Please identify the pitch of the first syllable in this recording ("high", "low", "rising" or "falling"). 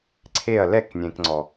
falling